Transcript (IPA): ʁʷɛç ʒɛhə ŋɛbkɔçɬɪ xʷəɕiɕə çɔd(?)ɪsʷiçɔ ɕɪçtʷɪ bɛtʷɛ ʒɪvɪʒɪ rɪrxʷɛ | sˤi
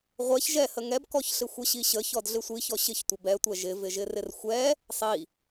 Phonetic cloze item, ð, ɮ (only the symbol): ɮ